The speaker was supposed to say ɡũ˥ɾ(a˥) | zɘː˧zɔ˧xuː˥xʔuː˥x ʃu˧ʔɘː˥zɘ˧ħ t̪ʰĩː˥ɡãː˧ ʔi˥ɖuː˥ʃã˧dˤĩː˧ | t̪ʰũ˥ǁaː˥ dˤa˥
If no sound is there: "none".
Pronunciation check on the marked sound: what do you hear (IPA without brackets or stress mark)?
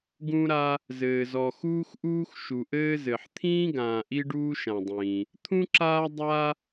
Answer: a˥